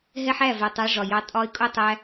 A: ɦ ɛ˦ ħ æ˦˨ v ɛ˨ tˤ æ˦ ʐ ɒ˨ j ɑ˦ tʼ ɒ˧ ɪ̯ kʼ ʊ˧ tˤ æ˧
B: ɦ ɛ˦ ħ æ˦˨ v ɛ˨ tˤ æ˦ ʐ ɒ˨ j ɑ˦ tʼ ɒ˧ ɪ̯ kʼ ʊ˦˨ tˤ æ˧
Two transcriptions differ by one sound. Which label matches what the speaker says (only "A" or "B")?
B